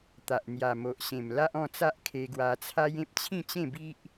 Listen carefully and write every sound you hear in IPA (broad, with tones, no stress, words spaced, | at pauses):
t̪a˨ʔn̪ja˨˩ mo˨ʔɕẽ˨˩m la˦ʔɔ̃˥˧t͡sa˦ʔ kʰe˧ɡwa˧ t͡sʰa˦jẽ˦p̚ t͡ɕʰĩ˥˧t͡ɕẽ˥˧bi˦ʔ